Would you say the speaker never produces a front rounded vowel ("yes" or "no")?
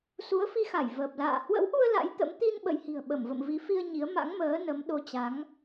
yes